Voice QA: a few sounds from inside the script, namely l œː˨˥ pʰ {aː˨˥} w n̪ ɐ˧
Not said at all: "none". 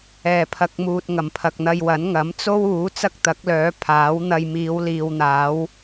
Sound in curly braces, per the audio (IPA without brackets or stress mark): aː˨˥